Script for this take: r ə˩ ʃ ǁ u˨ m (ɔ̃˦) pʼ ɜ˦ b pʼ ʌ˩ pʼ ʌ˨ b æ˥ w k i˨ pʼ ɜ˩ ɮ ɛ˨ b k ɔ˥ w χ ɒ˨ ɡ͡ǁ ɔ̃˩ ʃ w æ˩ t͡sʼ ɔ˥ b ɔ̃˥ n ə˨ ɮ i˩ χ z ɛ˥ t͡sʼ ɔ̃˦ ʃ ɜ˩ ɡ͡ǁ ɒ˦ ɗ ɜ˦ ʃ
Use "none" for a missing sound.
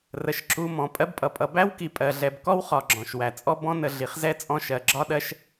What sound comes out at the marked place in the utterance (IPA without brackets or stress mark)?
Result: ɔ̃˩